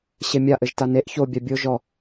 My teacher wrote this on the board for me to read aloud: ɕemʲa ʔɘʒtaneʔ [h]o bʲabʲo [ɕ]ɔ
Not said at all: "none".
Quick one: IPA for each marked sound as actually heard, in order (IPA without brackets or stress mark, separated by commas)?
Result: ç, ʒ